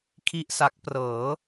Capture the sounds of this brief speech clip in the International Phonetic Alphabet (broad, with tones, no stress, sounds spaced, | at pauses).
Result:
kʰ i˥˩ ʔ s a˦˥ k̚ p r ɤː˩˦